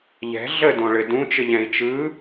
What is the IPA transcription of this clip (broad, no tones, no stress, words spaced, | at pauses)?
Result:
ʎɛ̤ ɮədõɭɘ dũt͡ʃɘʎɛ̃i̯ t͡ʃɯ